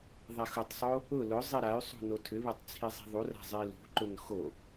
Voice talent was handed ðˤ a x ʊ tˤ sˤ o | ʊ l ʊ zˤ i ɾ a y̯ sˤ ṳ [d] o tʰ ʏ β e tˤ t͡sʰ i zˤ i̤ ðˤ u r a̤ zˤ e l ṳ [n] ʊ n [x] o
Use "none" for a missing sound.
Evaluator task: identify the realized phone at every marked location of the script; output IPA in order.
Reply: n, ǃ, x

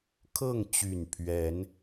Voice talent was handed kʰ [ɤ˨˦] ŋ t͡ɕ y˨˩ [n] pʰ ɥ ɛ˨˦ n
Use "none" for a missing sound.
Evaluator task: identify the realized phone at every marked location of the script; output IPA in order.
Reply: ɤ˥˨, n

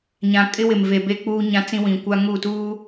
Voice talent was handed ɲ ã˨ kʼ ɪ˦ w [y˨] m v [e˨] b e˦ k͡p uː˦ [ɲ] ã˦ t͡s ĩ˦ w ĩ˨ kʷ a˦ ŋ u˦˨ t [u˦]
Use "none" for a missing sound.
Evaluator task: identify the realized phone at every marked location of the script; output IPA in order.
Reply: ɪ˨, e˨, ɲ, uː˦

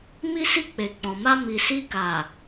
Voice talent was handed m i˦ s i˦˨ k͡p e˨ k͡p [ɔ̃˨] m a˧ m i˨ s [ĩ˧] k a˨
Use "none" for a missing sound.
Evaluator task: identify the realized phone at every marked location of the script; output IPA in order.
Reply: ɔ̃˨, i˧

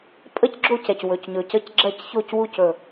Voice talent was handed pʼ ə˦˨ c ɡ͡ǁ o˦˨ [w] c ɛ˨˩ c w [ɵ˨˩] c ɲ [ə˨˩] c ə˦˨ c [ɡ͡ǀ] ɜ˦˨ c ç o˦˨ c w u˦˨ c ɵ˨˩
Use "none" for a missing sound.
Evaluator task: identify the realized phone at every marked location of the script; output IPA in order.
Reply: none, ɵ˨˩, ɵ˨˩, ɡ͡ǁ

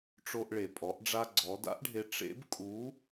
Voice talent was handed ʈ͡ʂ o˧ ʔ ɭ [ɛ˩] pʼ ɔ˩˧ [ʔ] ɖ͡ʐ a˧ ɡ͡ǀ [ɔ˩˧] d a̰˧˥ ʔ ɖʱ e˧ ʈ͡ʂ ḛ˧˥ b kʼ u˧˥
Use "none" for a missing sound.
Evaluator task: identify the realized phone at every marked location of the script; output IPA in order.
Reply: e˩, ʔ, ɔ˩˧

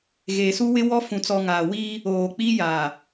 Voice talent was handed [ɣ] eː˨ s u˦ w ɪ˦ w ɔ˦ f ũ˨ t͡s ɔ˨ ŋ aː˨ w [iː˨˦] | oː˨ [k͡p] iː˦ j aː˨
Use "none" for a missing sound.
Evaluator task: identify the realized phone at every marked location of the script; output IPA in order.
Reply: ɣ, iː˦, k͡p

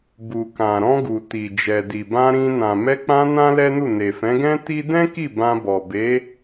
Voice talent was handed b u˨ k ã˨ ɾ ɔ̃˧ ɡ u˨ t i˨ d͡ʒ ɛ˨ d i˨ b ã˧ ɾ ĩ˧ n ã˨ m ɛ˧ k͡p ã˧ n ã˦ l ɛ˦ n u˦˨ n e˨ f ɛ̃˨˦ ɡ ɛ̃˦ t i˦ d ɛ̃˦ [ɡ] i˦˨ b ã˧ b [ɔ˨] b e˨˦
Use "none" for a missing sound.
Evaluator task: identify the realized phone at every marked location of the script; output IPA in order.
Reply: k, ɔ˨

